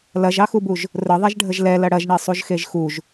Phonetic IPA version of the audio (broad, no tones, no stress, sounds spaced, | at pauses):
l ɐ ʒ ɑ x u b u ʒ | r ə ðˤ ɛ ʒ ɖʱ ə ʒ l ɛ l ɐ ɽ ɐ ʒ ɳ e sˤ u ʒ x e ʒ x u ʒ